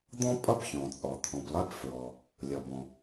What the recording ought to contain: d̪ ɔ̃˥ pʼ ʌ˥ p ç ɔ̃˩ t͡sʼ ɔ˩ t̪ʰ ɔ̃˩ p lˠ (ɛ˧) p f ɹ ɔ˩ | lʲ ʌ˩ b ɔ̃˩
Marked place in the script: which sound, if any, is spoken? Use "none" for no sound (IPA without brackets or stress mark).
ɛ˧